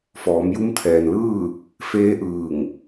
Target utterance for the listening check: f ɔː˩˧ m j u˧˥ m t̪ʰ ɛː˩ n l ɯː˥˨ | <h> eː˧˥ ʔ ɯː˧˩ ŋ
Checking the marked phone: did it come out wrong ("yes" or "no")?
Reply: yes